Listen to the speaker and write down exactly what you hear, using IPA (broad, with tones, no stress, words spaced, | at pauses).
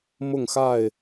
mʊ˥˨ŋxa˥˨ɪ̯